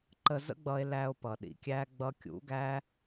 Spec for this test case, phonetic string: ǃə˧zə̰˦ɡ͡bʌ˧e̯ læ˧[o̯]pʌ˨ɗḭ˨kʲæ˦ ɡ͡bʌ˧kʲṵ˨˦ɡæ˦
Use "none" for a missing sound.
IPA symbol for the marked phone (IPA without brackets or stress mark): o̯